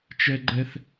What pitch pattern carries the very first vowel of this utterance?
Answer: high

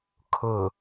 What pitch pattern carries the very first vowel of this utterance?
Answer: low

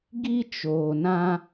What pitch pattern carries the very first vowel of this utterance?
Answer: high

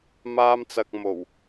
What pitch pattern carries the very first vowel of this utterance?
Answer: high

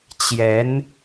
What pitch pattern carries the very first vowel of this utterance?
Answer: rising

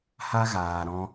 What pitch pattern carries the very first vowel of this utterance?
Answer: high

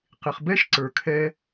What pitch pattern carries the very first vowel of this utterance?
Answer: low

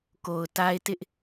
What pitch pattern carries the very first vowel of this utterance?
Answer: low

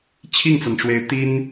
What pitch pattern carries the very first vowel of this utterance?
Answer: falling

